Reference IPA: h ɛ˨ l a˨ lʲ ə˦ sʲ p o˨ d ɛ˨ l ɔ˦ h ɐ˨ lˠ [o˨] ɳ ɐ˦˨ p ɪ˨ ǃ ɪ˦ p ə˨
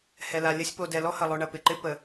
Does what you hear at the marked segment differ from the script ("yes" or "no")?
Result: no